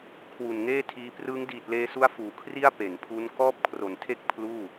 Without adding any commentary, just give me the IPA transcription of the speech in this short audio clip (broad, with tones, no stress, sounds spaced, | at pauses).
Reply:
kʰ w u˨˩ n ŋ eː˥˩ tʰ iː˧ p r ɯː˦˥ ŋ d iː˨˩ t̚ l eː˧ s u˦˥ a̯ f uː˨˩ kʰ r i˥˩ a̯ p e˩˦ n pʰ u˦˥ n k ɔː˥˩ p̚ kʰ r o˨˩ n tʰ e˥˩ k̚ pʰ l uː˥˩